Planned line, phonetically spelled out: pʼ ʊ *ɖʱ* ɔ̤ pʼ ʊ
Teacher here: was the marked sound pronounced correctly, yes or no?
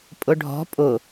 yes